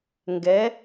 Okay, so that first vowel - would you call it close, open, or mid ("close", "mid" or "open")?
mid